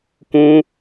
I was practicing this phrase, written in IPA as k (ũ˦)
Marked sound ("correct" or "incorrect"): correct